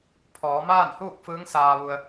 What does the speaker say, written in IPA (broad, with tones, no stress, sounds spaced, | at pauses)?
pʰ ɔː˩˧ m aː˥˨ n h uː˥˨ k̚ f ɯː˧˥ ŋ s aː˧ ʋ u˧ ə̯